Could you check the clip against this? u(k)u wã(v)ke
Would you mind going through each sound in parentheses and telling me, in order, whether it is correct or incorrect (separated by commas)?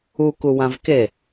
correct, correct